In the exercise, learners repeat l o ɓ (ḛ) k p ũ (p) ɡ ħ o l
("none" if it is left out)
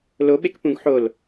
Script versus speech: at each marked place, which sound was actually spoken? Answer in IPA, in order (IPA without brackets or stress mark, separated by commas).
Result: e, none